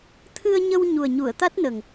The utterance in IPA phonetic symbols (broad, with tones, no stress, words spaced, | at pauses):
t̪ʰɨ˧ə̯ɲə˧w ɲu˨˩ə̯ɲu˨˩˨ə̯t̪a˦˥t̚nə˨˩ŋ